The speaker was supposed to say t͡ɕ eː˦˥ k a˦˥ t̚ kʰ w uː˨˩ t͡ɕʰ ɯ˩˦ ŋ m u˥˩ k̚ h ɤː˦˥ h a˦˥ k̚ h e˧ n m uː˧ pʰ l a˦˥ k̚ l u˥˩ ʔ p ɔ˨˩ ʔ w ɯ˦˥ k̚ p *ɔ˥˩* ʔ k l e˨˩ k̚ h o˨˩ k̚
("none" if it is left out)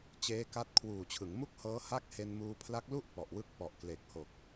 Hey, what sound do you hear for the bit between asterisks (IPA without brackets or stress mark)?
ɔ˨˩